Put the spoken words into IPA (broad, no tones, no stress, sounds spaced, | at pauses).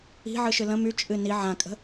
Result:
i̤ ʕ ɨ ʃ ɨ l ə̃ m y t͡ʃʼ ɨ n i ʕ ã kʼ ə̤